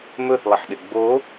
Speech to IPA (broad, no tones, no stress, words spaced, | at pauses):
mɵθlˠəħɗɪ ɡ͡bo